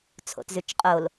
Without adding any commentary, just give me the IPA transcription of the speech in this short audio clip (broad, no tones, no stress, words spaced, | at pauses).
t͡sʰo̰tzʉt͡ʃqʼol